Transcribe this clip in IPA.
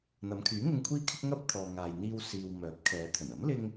n̪ ɐ˨˧ m kʰ yː˨˥ ŋ ɪ˧ ŋ kʷʰ iː˥ kʰ ɪ˥ k̚ ŋ ɐ˥ p̚ t̪ʰ ɔː˨ ŋ aː˨ j n̪ iː˧ w s iː˨ w m œː˨˥ p̚ kʰ ɛː˨˧ t̪ʰ ɵ˨˩ n ɐ˨˥ m l ɪ˧ ŋ

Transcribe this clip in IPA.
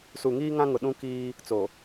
s u˨ ŋ iː˦ ŋ ã˦ ŋ ʊ˨ ɗ ũ˦ k iː˦ | t͡s o˨

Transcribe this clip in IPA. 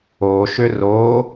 o ʃ ʏ r o

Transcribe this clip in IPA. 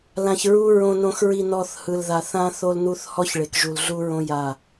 l ã˨ ç ɹ u˧ ɹ õ˨ n õ˨ x ɹ i˨ n ɔ˨ θ h ɯ˨ l ð a˨ θ ã˦ θ o˦ l n u˦ θ h ɔ˦ ç ɭ e˨ k ʒ u˨ l ɮ u˦ ɹ õ˦ j a˦˨

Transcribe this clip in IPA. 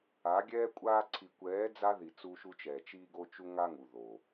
a˨˦ ɡʲ ɛː˦ kʷʼ aː˧ ǀʰ i˨ kʷ ɛː˨˦ d͡z a˦ ð i˨ t͡s u˧ ʃ u˧ t͡ʃ ɛ˨ t͡ʃ iː˧ ɡ o˧ t͡ʃ u˧ ŋ a˦ ŋ u˨ ð o˨

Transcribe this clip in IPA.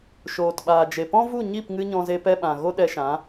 ʃ oː˨ t ɓ aː˨ d͡ʒ e˨ p ɔ̃˦ v u˦˨ ɲ i˦˨ p ŋ ɨ˧ ɲ ɔ̃˧ z e˧ p ɛ˧ ɓ ã˨ ɣ o˦ ɗ ɛ˧ ʃ ã˨˦

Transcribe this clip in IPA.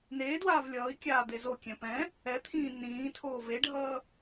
n eː d w aː v lʲ ʌː i̯ kʲ aː d̪ e z o kʲ ɛ̃ p ɛ̃ | ɛ t̪ʰ ĩː n ĩː tʰ oː v e ɖʱ ʌː

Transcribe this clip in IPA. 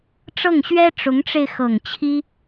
ʈ͡ʂ ɤ˥˩ ŋ ɕ ɥ ɛ˥ ʈ͡ʂ ʊ˧˥ ŋ ʈ͡ʂ e˧ ɪ̯ x ɤ˨˩ ŋ t͡ɕʰ i˥

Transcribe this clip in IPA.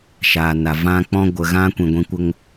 ʃ aː˨ n a˨ v ã˧ k͡p ɔ̃˧ ɡʷ ə˨ ɣ ã˧ kʷ ĩ˨ ɡʷ ĩ˧ kʷ ə˧ ŋ

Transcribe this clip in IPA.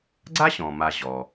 ɡ͡ǀ a˥ ɕ ɔ̃˩ m a˨ ʑ ɔ˩

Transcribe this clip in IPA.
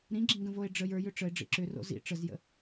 ɾ ĩ ɡ͡ǁ ĩ ŋ ɡ ə̃ v o e̯ ɖ͡ʐ ə j ə˞ j ʏ ʈ͡ʂ ə e̯ ɖ͡ʐ ḭ ǁ ʏ r o̰ z ḭ ʈ͡ʂ ə z j ə̰

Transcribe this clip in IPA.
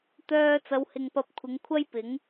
t̪ œː˧ t͡s ɐ˨˧ w h ɪ˨ ŋ p ɐ˨˥ p̚ kʷʰ ɪ˨˧ ŋ kʷʰ ɐ˥ j p ɪ˨˥ ŋ

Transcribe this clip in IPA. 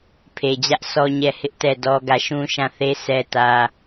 pʰ e˨ d͡ʑ ä˦ ʔ sʰ ɔ˦ ɲ ɛ˦˨ h ɪ˦ ʔ t ɛ˦˨ d ɔ˦ ɡ ä˦˨ ʃ ũ˦ ʃ ã˦˨ θ e˦ sʰ ɛ˦ t ä˦

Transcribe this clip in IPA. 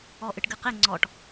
ɔ ʔ ɨ ʈ ɡ ɨ q e ŋ͡ǀ ɔ ʈ

